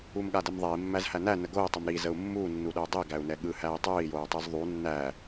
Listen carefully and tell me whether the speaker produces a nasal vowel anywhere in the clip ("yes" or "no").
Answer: no